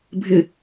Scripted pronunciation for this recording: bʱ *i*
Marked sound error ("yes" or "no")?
yes